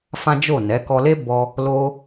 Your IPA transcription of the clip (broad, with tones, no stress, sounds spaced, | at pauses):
f ã˦ d͡ʒ o˦˨ n ɛ˨˦ k ɔ˧ l e˦ b ɔ˦ | l o˦